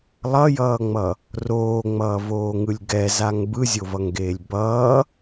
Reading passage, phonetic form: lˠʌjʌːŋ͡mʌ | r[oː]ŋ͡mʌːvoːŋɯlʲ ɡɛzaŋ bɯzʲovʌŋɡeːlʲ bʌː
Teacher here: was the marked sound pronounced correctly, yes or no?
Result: yes